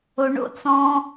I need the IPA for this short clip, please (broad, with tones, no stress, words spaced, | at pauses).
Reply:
o˨ɳo̰˦ t͡sɔ̃˧